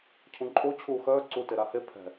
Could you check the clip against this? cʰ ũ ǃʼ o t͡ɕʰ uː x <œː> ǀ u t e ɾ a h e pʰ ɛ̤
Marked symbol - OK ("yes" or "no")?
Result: yes